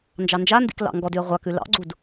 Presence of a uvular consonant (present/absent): present